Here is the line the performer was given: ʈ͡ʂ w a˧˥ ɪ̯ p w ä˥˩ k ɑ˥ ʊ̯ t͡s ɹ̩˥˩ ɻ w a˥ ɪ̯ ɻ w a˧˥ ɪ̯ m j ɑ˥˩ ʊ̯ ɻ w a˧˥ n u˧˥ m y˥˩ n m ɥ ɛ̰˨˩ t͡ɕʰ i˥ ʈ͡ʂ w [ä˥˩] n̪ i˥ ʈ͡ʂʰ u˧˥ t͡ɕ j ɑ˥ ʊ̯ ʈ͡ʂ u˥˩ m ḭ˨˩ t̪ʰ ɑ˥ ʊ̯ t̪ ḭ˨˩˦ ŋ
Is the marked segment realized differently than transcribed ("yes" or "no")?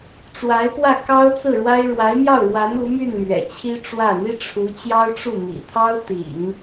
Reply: no